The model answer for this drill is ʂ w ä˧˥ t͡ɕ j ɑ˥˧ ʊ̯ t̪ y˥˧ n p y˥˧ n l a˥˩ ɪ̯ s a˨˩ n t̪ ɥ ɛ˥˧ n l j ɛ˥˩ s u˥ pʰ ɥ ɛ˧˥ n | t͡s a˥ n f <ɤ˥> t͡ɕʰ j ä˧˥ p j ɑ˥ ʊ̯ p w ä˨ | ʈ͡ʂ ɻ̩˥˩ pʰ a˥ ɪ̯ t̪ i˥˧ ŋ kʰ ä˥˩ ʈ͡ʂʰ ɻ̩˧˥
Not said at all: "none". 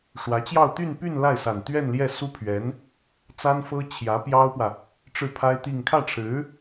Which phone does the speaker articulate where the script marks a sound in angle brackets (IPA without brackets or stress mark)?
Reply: ɤ˥